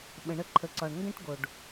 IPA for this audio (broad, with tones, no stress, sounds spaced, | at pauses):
ɓ ə̃˨ ɳ ə˧ ǃʰ ə˨ ǀ ɒ˨ ɳ ŋ ɡ ə̃˦ ʈ ɡ o˨ ɖ